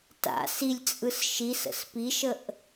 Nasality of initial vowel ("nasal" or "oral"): oral